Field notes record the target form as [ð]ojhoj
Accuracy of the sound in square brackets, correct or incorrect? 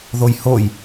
correct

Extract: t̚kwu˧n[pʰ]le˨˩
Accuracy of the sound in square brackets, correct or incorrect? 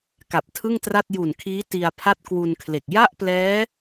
incorrect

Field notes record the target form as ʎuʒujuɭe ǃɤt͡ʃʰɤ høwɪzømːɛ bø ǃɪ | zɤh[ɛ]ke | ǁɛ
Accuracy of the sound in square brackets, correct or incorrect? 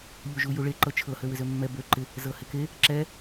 incorrect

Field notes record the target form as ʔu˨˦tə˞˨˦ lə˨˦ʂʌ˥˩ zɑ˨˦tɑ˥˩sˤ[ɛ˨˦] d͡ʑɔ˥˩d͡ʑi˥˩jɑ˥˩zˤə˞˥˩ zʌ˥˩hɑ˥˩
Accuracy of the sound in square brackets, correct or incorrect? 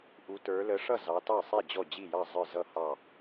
incorrect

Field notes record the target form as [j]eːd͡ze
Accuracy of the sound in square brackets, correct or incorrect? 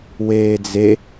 incorrect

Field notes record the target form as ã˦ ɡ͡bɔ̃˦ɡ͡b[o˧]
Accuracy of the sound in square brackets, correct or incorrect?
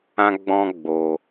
correct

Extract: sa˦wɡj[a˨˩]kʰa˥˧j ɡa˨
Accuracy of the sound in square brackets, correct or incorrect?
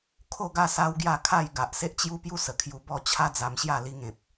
incorrect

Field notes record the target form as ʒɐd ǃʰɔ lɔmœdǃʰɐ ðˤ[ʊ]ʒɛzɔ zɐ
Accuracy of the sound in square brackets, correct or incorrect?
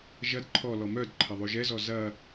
incorrect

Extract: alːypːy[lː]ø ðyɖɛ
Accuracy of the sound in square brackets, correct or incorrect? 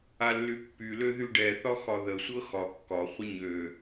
incorrect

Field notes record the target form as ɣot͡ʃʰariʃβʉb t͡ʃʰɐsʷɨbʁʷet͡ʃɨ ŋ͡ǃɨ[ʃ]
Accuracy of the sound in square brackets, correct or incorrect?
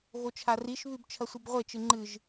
incorrect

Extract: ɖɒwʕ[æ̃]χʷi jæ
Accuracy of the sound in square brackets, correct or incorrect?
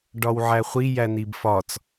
incorrect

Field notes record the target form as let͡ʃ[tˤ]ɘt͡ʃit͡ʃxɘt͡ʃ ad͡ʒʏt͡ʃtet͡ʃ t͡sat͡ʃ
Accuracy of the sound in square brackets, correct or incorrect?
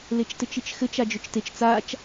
incorrect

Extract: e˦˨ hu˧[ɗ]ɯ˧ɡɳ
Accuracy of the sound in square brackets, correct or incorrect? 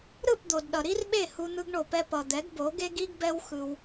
incorrect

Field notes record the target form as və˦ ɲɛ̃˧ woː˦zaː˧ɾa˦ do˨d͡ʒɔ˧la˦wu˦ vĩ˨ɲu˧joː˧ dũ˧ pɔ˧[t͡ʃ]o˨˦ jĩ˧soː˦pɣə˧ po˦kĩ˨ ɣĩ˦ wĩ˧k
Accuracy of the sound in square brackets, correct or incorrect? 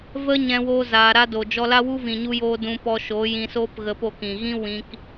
incorrect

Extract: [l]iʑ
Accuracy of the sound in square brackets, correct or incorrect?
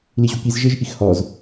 correct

